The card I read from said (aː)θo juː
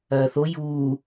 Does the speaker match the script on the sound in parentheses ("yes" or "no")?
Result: no